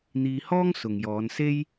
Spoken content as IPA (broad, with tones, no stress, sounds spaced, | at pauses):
n̪ iː˧ h ɔː˥ ŋ s ʊ˨ ŋ j ɔː˨˧ n s e˥ j